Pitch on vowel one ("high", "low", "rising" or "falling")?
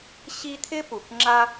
high